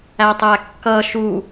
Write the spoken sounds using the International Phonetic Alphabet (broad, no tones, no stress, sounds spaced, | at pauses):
æ tˤ æ kː ʌ ʃ u